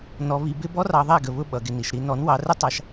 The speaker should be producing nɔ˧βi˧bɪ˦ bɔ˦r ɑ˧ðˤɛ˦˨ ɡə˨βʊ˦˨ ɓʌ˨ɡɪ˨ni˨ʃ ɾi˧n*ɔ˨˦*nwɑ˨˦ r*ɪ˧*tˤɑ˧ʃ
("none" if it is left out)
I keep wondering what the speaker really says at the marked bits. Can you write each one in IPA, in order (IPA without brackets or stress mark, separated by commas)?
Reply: ɔ˨˦, ɪ˦